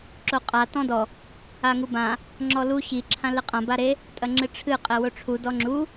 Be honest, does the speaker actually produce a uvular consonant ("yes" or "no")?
yes